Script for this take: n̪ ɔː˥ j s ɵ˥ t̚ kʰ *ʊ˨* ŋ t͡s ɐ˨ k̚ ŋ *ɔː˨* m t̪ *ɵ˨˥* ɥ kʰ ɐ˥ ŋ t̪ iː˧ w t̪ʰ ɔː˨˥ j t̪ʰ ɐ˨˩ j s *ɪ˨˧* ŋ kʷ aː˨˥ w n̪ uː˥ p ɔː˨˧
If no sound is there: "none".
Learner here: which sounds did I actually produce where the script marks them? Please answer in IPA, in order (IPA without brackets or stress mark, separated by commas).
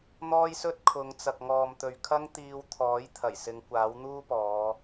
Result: ʊ˨˧, ɔː˨, ɵ˨, ɪ˨˧